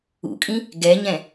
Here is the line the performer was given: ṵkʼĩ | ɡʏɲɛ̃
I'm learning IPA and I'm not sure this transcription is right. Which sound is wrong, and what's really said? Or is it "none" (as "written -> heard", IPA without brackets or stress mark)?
ʏ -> ɛ